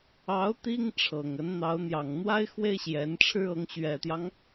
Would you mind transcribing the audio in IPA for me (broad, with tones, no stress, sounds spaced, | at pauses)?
ɑ˧˥ ʊ̯ t̪ i˥ ŋ ʈ͡ʂʰ ɤ˨˩ ŋ ə˧˥ n n̪ ɑ˧˥ ʊ̯ n̪ j ɑ˨˩ ŋ n̪ w a˥ ɪ̯ x w e˥ ɪ̯ ɕ j ɛ˧˥ n ʈ͡ʂʰ ɻ̩˥ ɤ˧˥ ŋ ɕ ɥ ɛ˨˩ t̪ j ɑ˦ ŋ